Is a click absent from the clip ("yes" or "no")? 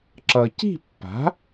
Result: no